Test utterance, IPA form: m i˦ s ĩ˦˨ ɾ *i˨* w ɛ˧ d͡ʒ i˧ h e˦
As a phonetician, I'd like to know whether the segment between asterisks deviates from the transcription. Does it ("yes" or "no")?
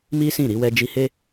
yes